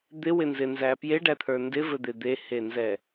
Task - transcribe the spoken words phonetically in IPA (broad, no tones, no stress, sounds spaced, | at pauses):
d̪ ɪ w ɪ n z ɪ n z æ p j e ɖ æ t̪ʰ ə˞ n d ɪ v ɘ d̪ e d̪ e h e n z ɛ